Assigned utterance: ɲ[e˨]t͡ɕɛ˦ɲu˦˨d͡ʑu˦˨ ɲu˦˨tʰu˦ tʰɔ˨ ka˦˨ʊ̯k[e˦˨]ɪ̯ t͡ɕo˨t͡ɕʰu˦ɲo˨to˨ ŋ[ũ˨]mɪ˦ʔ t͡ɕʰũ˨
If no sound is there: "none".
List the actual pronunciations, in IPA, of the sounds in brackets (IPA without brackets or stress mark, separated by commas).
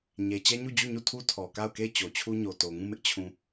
e˨, e˦˨, ũ˦˨